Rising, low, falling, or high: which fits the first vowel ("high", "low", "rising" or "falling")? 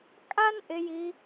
high